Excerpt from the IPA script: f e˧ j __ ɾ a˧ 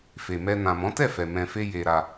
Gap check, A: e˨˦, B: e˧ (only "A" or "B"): B